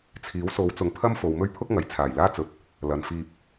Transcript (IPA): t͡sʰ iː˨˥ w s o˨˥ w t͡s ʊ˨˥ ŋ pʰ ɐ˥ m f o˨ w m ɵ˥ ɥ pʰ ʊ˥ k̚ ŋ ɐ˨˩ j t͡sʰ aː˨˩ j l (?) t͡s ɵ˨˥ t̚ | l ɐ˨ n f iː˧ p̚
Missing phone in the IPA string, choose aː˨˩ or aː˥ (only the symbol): aː˥